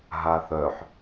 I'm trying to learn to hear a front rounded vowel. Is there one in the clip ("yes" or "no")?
yes